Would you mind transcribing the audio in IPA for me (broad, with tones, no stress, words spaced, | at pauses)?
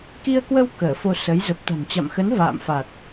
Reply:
ki˧ə̯kwə˧w kəː˧˩fo˧sə˨˦j zə˨˩p̚t̪a̤˨˩nt͡ɕa̰˧˨mxə˨˦n va̰ː˧˨mfa˨˩t̚